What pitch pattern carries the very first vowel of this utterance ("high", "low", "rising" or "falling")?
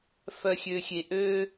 low